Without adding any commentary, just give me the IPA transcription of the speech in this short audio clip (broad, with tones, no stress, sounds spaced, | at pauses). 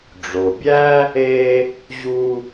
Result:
ɖ͡ʐ o˩ bʲ æ˥ | e˧ | ʑ u˧